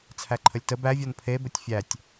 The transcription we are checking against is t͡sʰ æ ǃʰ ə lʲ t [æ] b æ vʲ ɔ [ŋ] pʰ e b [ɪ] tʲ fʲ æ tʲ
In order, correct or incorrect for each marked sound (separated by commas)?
incorrect, incorrect, incorrect